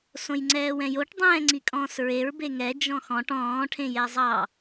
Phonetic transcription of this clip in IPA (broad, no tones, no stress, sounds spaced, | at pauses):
s õ j ŋ͡ǀ ɛː w ɛ̃ j o ʈ dˤ ɛ̃ː ŋ͡ǀ i kʼ ɔ̃ː s ɹ e ɹ b e ŋ ɛ d͡ʒ ɔ̃ x ɔ̃ ʈ ɔ̃ː ʈʰ ẽ j ɛ zˤ ɑ